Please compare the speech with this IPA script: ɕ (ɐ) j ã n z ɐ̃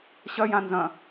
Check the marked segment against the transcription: correct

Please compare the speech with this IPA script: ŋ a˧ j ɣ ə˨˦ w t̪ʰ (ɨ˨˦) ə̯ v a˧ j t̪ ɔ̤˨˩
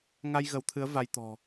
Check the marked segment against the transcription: correct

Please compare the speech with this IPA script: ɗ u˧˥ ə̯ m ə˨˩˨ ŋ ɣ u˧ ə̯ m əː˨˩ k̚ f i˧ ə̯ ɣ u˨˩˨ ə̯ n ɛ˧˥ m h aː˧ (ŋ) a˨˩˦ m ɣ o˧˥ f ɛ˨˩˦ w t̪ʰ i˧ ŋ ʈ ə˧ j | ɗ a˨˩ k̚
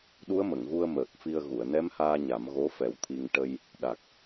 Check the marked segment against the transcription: incorrect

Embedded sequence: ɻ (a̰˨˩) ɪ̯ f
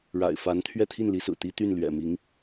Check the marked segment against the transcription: correct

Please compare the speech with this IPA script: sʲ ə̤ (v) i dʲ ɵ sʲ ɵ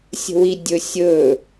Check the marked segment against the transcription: incorrect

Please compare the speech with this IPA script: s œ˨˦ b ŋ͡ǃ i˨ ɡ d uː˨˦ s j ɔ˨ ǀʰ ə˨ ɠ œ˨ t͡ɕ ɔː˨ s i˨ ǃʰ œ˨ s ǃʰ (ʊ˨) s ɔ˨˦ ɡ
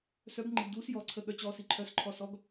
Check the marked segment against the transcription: incorrect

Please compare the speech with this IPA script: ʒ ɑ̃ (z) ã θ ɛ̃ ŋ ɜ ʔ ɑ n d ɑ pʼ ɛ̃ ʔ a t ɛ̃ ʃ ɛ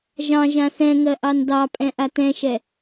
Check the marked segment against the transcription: incorrect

